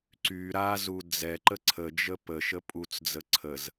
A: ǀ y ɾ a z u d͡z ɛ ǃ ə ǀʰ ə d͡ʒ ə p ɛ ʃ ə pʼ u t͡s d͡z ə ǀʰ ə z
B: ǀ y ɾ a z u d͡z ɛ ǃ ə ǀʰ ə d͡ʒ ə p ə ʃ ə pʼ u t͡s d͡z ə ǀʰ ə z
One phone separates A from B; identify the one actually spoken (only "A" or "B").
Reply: B